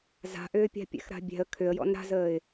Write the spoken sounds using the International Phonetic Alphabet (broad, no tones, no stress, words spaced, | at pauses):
za̤ʔʏː pʲa̤pʲɛ̰xɾa̤bʲɛ̤ə̯ kʰʏə̯jɔ̰n ɾa̤zəːɪ̯